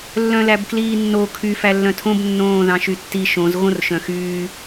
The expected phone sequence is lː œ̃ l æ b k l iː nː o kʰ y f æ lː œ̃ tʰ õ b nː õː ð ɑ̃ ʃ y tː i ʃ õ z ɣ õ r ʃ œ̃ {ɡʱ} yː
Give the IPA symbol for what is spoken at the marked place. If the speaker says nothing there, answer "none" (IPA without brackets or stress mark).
x